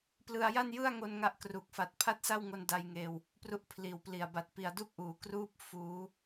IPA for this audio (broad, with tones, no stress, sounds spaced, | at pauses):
p l ɯ˧ a̯ j a˥˩ n j ɯ˥˩ a̯ ŋ o˧ n ŋ a˦˥ ʔ k r u˨˩ k̚ f a˨˩ t̚ pʰ a˥˩ t̚ s a˥˩ w ŋ o˧ n d a˧ j ŋ eː˧ w | p r u˦˥ ʔ pʰ l iː˨˩ w p l i˨˩ a̯ b a˨˩ t̚ p i˨˩ a̯ d u˥˩ k̚ ʔ uː˩˦ k r uː˥˩ p̚ f uː˦˥